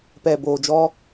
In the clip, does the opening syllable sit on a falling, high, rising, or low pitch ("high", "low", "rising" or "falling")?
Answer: low